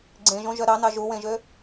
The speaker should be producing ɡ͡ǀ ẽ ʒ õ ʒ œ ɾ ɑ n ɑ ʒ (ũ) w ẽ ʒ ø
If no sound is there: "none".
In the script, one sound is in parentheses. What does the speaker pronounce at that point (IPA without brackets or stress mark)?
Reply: u